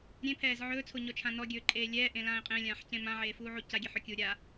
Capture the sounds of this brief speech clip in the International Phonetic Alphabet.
ɾʲ ẽ pʰ ɛː z ʕ ɵː t͡sʰ o ɲ ɔ t͡ʃʰ ã n ɔ ɡʲ ɵː ǃʼ eː lʲ ɛː ʔ ẽ l ãː ɪ̯ qʼ ẽ lʲ ãː ħ c ẽ m ã ʕ eː f uː ʕ u c a ɡʲ e ħ ɵ kʲ u ɾʲ a

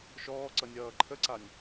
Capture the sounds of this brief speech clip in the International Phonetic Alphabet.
ʃ ɔː ǀ ʌ nʲ ʌː ǃʰ ə ǀ a nʲ

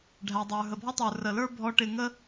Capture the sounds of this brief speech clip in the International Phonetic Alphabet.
ɖʱ æ˩ dˤ ə˞˩ ɦ ə˩ bʱ ɔ˥ tˤ ə˞˩ r ə˩ l ə˞˥ bʱ ɔ˧ ʈ ɪ˧ ŋ ə˥

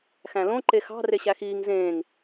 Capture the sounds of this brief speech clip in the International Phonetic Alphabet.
x æ̃ l õ ǃ e x ɑ̤ r e ɕ æ x iː ŋ z ẽː ŋ

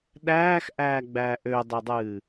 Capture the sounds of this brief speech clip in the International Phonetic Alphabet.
ɗ æː x ʔ æː ɡ͡b æː ʔ ø dˤ ɘ dˤ ɨː

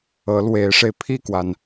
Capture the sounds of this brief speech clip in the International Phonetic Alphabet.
ɤ˧˥ l w e˧˥ ɪ̯ ʂ e˧ ɪ̯ pʰ i˥˩ k w a˩ n

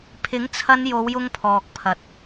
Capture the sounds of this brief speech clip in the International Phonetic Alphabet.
pʰ ɪ˨˥ ŋ t͡sʰ ɐ˧ n j o˨˧ w j ʊ˧ ŋ pʰ ɔː˨ k̚ pʰ ɐ˨ t̚

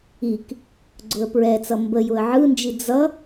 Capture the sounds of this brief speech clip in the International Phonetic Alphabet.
i k | ɡ͡ǀ ʊ ə̯ p ɹ ɛ t͡s ʌ m b ə j ʊ ə̯ ʕ ɯ n d͡ʒ i d͡z ʌ

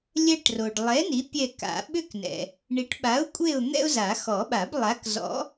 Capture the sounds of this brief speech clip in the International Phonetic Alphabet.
lʲ ɛ˥ ʈ r o˨ ɖ lˠ ɛ˨˥ n i˨˥ pʲ ɛ˦˨ k a̰˨˩˦ ɓ ʏ˥ k n ɛ̰˨ | ɳ i˨˥ ʈ ɓ a˨˥ ʊ̯ kʷʼ e˦˨ ʊ̯ n̪ ɛ̰˥ ʊ̯ z a˨˩˦ x ɔ˨˩˦ ɓ a˨˩˦ b lˠ a˨˥ k z ɔ̰˨˥

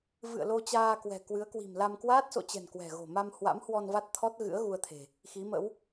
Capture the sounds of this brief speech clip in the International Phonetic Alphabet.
v ɨ̰˧˨ ə̯ l o˧ t͡ɕ aː˧ k w ɛ̤˨˩ k w ɨ˨˦ ə̯ k w i̤˨˩ m l a˧ m k w aː˦˥ t̚ s o̰˧˨ t͡ɕ ɛ̤˨˩ n k w ɛ̤˨˩ ɣ o̤˨˩ m a˧ m h w a̰˧˥ m h w ɔ˧ n v a˦˥ t̚ t̪ʰ ɔ˦˥ t̚ ɣ ɨ̰˧˥ ə̯ ɣ u˧ ə̯ t̪ʰ e̤˨˩ | x i˨˦ m ə̰˧˥ w

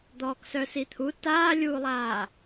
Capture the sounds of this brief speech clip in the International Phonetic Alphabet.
d̪ ɔː k s œ s i t̪ʰ u t aː lʲ uː lˠ aː

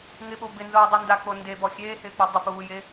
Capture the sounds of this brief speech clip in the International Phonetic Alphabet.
ŋ ɪ ɓ o b ɪ n z oː dˤ u n d a k͡p o n d e b ɔ xʲ eː h ɪː k͡p u dˤ ɪ p uː j e

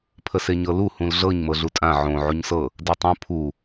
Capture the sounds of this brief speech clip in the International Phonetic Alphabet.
pʰ ə s e ɲ ɤ l u h ũ l ɮ ɤ ɲ m ɤ ɮ u tʼ ã ʕ õ ʕ u ɲ s ɤ | d e tˤ õ pʰ u

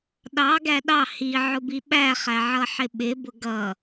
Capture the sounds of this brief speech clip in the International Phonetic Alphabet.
ɗ ɑ ɡ æ ɗ ɑ h i ʕ ʊ b i ɓ æ χ æ ʕ ʌ ħ ɪ ɓ ɪ b ʊ ɡ ʌ

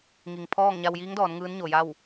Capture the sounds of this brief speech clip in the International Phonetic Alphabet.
ŋ i˩ ŋ pʰ ɔː˥˨ ŋ ɲ a˧ w j iː˧˥ ŋ d ɔː˩˧ n ŋ ɯː˧˥ n ɲ o˩ j a˥˨ w

